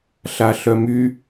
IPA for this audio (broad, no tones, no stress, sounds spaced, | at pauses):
ɬ a ɬ œ m y